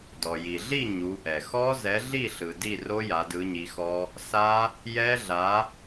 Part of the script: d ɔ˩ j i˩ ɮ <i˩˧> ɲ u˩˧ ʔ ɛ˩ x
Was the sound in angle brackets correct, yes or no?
no